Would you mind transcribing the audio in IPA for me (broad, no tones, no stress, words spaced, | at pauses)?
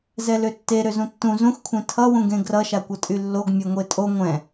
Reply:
zɛløtːe ɾøzũtːũ zũxkʷʰẽ tʰʌwũɡẽ ɡrʌʃakʷʌtʼy lːoɡ mʲɛŋʷetʼo ŋʷɛ̃